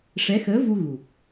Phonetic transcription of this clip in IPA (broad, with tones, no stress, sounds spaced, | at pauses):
ʂ ɛ˧˥ x əː˧˥ v u˧ ɣ u˨˩ p̚